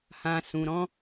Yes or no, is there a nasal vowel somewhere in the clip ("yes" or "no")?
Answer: yes